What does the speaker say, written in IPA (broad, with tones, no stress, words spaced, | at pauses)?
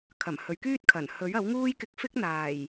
kʰɐ˨˩m hɵ˨˧ɥkyː˥t̚kʰɐ˨˩n hɵ˨˥ɥɐ˨˥wŋuː˥j kɪ˧k̚fɪ˥k̚ n̪aː˨˩j